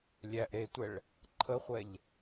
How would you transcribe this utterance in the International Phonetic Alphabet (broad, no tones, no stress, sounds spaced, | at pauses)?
lʲ æ ʔ ɾ e tʷ ɛ ɭ | ǃʰ ə χʷ ɛ ʎ